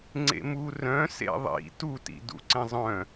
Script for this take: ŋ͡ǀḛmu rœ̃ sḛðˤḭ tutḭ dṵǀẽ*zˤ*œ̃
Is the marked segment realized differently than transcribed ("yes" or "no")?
no